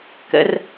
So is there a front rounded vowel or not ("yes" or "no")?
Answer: no